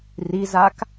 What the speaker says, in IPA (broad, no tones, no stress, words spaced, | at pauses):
rizak